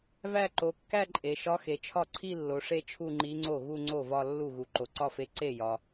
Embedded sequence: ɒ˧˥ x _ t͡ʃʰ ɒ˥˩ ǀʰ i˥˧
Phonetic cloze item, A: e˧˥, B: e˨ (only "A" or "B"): B